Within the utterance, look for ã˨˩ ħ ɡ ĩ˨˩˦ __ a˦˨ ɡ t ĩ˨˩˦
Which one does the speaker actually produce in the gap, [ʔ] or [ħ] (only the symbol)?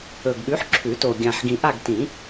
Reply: ʔ